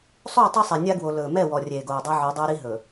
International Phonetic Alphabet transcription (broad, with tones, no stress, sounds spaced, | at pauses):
sˤ o˦˨ tˤ i˦ sˤ ɛ˨ nʲ a˦ ɡ w o˨ l ɵː˨ m ɛ˦˨ w ɔ˨ rʲ eː˨ ɡ oː˨ dˤ a˦ ʕ ɵː˨˦ dˤ ɛː˦ ɾ i˦ ɦ ɵː˨